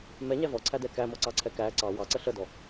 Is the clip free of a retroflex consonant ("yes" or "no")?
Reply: yes